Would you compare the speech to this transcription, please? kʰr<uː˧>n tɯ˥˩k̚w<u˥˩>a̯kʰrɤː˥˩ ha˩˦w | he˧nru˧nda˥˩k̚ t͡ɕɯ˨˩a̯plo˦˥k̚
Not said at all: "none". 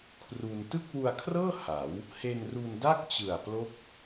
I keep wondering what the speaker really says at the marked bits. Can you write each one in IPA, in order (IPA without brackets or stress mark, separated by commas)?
u˧, u˧